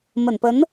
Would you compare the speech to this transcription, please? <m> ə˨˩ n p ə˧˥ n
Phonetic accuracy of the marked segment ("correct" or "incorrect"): correct